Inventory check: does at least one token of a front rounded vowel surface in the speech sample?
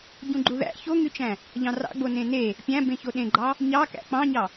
yes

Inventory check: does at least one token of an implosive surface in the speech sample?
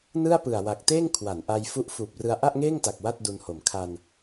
no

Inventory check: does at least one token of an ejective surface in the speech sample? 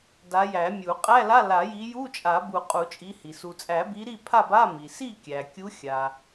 yes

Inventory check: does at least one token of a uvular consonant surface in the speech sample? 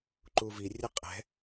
yes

